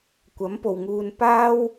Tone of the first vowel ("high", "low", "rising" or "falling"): rising